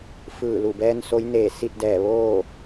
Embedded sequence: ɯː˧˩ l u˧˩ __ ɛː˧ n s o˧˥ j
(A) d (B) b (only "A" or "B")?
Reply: B